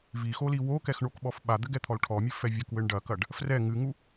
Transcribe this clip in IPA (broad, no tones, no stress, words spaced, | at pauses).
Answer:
vixoli wokɛxɳokɓɔf ɓad̪ɘɡɛt̪ʰɔl ʈʰɔmʲɘfɛ vʲɐkwɘɳ ɖɐkɐɖ | frɛ ŋɨŋu